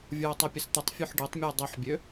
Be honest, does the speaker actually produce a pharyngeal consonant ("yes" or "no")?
yes